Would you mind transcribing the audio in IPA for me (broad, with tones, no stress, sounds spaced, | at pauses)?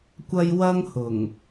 kʷ ɐ˥ j w ɐ˥ ŋ h ʊ˨˩ ŋ